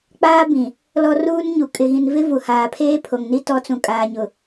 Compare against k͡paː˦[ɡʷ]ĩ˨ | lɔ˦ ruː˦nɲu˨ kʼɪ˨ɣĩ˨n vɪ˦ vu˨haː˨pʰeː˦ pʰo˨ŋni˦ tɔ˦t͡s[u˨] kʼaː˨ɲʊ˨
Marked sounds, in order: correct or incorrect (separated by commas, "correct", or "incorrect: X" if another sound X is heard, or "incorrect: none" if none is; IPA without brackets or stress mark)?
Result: incorrect: b, incorrect: ũ˨